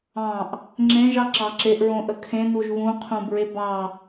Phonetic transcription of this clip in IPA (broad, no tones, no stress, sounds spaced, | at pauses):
ɑ̃ ʔ | ŋ͡ǁ ẽ ʒ ɑ ǁ ɑ ǁ e ʔ ɹ õ ʔ ə kʰ ẽ n u ʒ β ũ qʰ ũ b ɹ e b ɑ